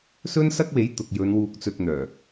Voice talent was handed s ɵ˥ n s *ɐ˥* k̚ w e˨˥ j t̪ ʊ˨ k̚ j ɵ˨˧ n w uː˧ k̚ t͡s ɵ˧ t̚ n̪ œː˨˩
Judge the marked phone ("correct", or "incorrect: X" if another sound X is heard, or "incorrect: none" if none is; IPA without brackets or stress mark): correct